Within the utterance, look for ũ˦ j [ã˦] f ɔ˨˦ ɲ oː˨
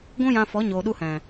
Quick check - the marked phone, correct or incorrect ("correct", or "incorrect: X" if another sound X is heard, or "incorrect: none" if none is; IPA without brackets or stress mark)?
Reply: incorrect: ã˧